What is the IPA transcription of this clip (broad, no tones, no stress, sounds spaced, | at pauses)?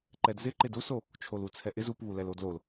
ǃ ɛ d z ɪ ǃ ɪ d u s o | t͡ʃʰ o l u t͡sʰ ɛ ʔ ɪ z u p β u l ɛ l o d l o l